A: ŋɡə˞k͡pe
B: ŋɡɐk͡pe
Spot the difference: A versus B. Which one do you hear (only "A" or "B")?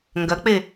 B